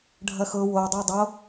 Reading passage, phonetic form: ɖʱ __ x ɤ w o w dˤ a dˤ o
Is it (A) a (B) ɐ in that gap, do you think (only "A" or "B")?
B